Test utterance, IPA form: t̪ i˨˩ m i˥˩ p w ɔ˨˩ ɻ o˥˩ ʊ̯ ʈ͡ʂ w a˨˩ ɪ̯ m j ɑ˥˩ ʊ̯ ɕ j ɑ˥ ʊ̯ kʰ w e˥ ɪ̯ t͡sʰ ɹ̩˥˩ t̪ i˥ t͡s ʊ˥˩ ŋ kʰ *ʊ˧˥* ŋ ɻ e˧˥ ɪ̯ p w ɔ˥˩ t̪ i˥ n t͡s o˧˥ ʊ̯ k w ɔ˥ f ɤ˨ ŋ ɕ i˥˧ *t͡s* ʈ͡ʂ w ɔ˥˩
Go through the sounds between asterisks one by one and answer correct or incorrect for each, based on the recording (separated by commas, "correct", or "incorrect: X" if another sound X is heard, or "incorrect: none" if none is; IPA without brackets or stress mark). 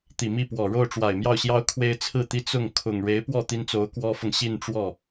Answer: incorrect: ʊ˨˩, incorrect: n